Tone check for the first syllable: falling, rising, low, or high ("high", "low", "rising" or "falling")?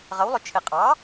rising